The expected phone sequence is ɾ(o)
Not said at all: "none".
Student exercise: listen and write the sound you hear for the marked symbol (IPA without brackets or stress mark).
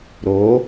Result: o